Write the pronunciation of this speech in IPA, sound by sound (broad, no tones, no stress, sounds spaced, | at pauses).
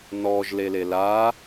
n ɔ ʒ l e l e l a